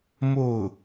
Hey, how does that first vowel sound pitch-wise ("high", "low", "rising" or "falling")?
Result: falling